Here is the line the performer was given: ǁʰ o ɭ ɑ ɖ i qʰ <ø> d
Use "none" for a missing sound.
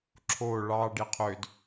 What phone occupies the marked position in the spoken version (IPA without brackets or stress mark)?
ø